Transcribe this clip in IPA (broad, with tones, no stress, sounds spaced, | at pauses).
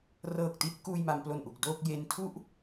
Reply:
r ɤː˨˩ k̚ t i˥˩ t̚ k uː˧ j m a˩˦ m p l o˨˩ n ʔ u˨˩ k̚ d o˥˩ k̚ j e˦˥ n tʰ u˥˩ ʔ